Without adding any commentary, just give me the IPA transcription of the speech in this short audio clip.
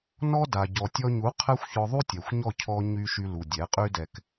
n ɔ˦ d a˨ ɟ ɔ˨ tʲ ɔ˧ ɲ u˨˦ qʰ ɛ˦ xʷ ç ɔ˧ ðˤ u˦ tʲ ɛ˨ xʷ ɲ ɔ˦˨ cʰ ɔ˧ ɲ y˧ ʃ y˧ l u˨ dʲ ɛ˨˦ qʼ y˦ d ɛ˧ k

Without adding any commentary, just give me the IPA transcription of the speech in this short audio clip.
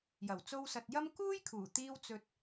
j ɐ˨˩ w t͡s o˧ w s ɐ˨ t̚ j ɐ˥ m k uː˥ j kʰ uː˨˩ t̪ iː˧ w t͡s ɵ˧ t̚

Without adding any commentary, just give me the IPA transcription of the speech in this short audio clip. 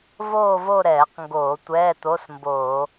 v oː˥˧ v o˥˧ ɾ ɛː˧˩˧ q ŋ ɡ oː˧˩˧ tʷ ɛː˧˥˧ t̪ o˧˥˧ s m b oː˧˩˧

